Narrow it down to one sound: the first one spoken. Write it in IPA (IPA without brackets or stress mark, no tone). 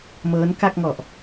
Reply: m